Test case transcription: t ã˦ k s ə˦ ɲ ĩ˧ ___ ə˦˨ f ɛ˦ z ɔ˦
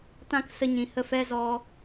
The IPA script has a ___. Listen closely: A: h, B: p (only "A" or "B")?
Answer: A